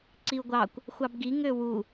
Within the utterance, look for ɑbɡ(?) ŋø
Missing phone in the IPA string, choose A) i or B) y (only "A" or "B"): A